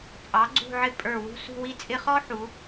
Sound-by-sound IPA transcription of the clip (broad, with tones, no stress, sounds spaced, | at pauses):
t͡sʼ ɑ˩˧ ɡ͡ǀ ṳ˥˧ ʕ ɪ˥˧ pʼ ə˞˧˩ w ṳ˥˧ s ṳ˥˧ w i˥ t͡sʼ ɪ˥ χ ɔ˥ ħ u˩˧